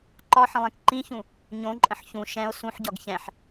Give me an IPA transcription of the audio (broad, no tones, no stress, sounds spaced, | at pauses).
ǃ ɒ ħ ə̃ lˠ ẽ k ǃ ĩ ç ũ | ɲ õ ǃʼ ə̃ ħ ç ũ ʃ ɛ̃ o̯ s ũ ħ ɟ ɒ ɡ ç ɛ̃ ħ